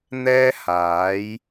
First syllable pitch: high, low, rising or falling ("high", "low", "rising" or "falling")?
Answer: high